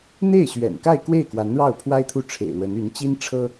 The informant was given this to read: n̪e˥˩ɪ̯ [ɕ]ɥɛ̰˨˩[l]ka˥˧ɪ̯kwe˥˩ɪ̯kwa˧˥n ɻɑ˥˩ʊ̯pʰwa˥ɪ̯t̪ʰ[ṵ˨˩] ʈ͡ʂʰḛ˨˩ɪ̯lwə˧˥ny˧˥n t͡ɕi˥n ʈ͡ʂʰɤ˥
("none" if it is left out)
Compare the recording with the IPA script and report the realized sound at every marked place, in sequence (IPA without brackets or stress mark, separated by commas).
ɕ, n, u˥˩